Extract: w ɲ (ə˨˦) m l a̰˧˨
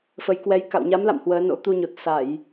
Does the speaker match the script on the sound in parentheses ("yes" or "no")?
no